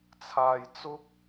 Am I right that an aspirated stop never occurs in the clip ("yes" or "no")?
no